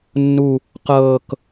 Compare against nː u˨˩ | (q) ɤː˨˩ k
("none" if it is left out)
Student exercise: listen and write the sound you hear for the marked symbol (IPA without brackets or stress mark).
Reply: q